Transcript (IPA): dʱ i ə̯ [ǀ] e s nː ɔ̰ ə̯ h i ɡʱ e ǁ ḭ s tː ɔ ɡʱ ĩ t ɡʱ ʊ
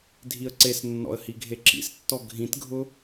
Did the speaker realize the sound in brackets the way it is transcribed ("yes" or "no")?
yes